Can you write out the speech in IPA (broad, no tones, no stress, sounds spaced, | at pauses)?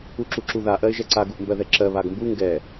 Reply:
u ǁ u ǁ u ð a ʔ ɜ ɪ̯ ʒ ɛ ǀ a ɡ u ʔ m b ɜ ð ɛ ǁ ɜ β a ɡ m b u ŋ ɡ ɛ